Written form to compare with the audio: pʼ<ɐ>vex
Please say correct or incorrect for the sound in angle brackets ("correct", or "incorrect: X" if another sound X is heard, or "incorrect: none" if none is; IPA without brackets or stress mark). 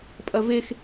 correct